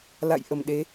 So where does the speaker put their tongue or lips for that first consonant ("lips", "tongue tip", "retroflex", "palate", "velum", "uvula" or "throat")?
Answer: tongue tip